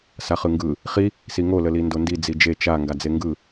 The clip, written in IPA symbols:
saχɯŋɡɯ | χi | siŋo ləlindondi d͡zid͡ʒe t͡ʃa ŋɡad͡zeŋɡɯ

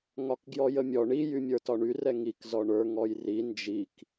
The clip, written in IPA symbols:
ŋɒkɡjɔjəmʲɔ ɳi jymʲə˞tɒɳy rɛŋik zɔɳə˞ ŋɔjri nd͡ʒik

